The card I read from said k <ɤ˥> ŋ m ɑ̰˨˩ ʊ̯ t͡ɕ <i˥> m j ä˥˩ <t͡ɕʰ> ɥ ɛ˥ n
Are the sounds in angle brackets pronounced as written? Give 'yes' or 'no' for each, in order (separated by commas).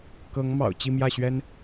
no, no, no